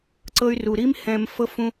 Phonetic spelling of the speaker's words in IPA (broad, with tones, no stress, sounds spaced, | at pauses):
ǀ ɤ˦ y̯ r u˧ ɾ i˦ m h ɛ̃˧ m f ɤ˦ f ũ˦